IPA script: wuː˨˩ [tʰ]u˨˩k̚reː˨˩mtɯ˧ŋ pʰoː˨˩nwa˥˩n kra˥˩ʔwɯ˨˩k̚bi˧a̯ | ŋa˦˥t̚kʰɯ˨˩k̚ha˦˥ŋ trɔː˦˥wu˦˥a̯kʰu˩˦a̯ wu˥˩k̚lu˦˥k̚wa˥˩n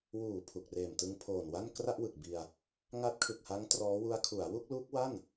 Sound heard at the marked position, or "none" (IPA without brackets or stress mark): pʰ